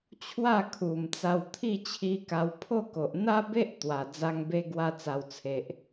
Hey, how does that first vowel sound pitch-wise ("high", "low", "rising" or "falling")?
falling